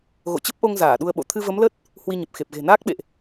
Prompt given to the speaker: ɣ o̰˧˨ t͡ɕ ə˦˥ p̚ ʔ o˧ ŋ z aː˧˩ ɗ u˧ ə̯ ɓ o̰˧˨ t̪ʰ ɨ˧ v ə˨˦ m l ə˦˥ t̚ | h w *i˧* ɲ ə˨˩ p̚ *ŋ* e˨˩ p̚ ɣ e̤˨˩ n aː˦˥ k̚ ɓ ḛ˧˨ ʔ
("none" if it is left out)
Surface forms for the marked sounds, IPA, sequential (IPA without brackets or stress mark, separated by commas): i˧, x